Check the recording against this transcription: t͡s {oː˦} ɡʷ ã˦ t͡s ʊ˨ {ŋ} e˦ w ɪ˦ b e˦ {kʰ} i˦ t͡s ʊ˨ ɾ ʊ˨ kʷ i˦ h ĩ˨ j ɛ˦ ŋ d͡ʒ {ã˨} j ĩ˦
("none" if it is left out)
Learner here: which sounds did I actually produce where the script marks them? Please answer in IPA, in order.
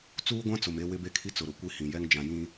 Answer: uː˦, m, kʰ, ã˨

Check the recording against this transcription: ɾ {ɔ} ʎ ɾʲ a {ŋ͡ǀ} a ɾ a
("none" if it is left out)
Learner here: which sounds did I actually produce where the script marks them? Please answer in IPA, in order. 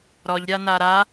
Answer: ɔ, n

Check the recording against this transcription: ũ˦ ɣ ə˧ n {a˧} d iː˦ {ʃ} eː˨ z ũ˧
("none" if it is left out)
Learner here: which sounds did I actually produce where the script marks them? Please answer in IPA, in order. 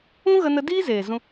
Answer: ə˧, z

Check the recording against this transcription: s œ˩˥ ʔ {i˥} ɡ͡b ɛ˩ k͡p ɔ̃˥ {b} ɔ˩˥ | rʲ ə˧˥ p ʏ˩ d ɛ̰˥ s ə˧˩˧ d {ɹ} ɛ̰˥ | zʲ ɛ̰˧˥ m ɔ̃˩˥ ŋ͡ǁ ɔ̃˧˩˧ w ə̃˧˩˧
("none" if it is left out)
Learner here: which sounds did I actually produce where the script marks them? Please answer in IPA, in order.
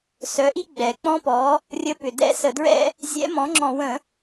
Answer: i˥, p, ɹ

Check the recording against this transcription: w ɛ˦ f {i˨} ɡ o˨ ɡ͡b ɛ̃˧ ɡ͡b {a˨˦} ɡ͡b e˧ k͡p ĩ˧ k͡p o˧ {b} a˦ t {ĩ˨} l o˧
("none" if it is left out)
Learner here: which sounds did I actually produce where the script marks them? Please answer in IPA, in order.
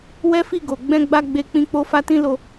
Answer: i˦˨, a˧, f, ĩ˦

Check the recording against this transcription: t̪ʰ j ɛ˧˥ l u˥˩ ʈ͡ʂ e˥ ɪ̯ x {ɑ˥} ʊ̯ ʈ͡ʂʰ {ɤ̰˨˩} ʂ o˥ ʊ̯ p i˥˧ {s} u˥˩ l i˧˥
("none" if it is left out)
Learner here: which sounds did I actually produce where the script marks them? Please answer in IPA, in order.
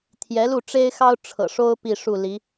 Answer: ɑ˥, ɤ̰˨˩, ʂ

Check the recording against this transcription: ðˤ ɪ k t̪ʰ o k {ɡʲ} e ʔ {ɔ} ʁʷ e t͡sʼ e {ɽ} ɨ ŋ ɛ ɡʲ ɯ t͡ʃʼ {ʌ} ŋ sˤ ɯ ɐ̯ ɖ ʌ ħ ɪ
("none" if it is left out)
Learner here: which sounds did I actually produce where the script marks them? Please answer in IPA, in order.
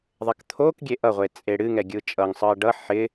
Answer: ɡʲ, ʌ, ɽ, ʌ

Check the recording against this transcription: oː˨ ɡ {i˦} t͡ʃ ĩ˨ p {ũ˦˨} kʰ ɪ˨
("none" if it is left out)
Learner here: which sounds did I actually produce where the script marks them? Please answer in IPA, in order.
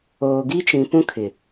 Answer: i˦, ũ˦

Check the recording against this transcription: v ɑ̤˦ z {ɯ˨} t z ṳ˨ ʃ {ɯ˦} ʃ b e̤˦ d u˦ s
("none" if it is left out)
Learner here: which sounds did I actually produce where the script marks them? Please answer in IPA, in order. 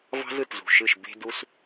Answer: ɯ˨, ɯ˦˨

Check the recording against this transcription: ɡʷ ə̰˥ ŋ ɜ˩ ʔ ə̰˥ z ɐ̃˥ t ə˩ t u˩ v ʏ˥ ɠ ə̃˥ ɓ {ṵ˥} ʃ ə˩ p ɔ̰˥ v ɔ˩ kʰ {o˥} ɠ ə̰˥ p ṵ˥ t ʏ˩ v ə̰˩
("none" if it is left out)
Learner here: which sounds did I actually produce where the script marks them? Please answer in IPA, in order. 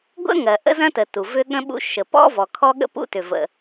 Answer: ṵ˥, ɔ˥

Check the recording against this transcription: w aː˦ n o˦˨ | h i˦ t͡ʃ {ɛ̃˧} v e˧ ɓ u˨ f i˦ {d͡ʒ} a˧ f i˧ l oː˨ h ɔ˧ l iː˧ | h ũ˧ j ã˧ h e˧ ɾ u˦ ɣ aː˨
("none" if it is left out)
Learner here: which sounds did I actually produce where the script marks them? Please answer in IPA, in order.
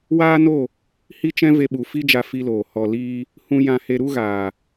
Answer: ɛ̃˦, d͡ʒ

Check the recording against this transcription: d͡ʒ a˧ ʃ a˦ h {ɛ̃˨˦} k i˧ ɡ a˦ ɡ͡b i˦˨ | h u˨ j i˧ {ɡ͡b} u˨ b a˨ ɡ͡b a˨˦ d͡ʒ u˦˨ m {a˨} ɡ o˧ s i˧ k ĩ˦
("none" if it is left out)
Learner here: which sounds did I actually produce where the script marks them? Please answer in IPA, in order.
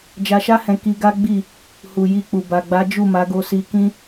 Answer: ɛ̃˧, k͡p, a˨˦

